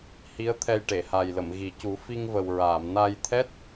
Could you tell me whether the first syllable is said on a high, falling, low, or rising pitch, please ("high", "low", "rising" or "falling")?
rising